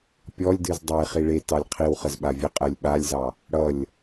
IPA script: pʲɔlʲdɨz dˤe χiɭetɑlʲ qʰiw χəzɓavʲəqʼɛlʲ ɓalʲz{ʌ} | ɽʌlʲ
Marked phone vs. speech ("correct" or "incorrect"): incorrect